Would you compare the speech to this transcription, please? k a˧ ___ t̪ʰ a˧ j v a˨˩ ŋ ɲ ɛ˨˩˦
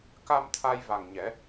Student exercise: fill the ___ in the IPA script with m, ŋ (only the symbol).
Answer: m